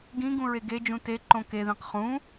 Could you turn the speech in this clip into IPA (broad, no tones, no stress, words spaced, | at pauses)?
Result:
ɡĩɡũ ɹeɡed͡ʒũ te ǃõkeðĩq χũ